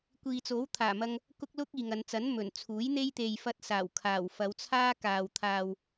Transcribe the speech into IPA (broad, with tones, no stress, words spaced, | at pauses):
kʷiː˨t͡so˨˥wt̪ʰaː˨˩mɐ˧ŋ | kʊ˥k̚lʊ˥k̚ iː˨ŋɐ˨˧nt͡sɐ˨˥n mɵ˨˩nt͡sʰuː˨˥jn̪e˥j t̪e˨jfɐ˧t̚saː˨˩wkʰaː˨˩w fɐ˨˧wt͡sʰaː˥kaː˨w t̪ʰaː˨w